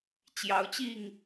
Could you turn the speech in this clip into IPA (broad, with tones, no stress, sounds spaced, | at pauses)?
t͡ɕ j ɑ˨˦ ʊ̯ t͡ɕ i˥˨ ŋ